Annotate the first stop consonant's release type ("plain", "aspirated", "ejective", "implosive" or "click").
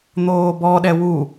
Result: plain